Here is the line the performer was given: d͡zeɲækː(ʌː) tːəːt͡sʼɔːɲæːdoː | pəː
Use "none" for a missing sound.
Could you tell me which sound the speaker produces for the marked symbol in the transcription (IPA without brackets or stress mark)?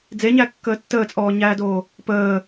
əː